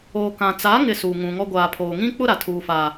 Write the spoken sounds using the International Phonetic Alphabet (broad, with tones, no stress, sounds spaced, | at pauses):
oː˨ k ã˨ t͡s aː˨˦ ŋ ɪ˨ s uː˨ ŋ ũ˨ ŋ ɔ˦ ɡʷ aː˨ pʰ oː˨ ŋ ĩ˦ k͡p ʊ˦ ɾ a˨ tʰ uː˦ f aː˦